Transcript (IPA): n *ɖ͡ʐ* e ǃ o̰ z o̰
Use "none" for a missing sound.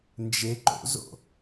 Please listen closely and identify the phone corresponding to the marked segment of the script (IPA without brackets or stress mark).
d͡ʒ